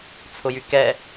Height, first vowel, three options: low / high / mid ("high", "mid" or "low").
high